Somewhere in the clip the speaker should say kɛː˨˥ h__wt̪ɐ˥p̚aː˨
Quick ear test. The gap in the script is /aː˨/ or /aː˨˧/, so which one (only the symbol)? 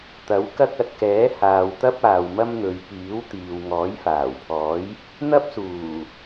aː˨